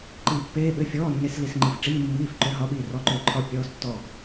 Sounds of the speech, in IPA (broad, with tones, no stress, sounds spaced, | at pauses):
ǃ i˦˨ pː eː˧˥˧ ɓ ʏ˧˥˧ fʲ ɔː˧˥˧ nː e˧˥˧ s l i˦˨ s ŋ͡ǃ i˦˨ f ʈ͡ʂ iː˧˥˧ mː iː˧˥˧ f ǃ ʏ˧˥˧ ɦ ɒ˧˥˧ ɓ iː˦˨ r ɔ˧˥˧ ǃ ʏː˦˨ ǃʰ ɒ˦˨ pʲ ɔː˧˥˧ s tː ɔ˦˨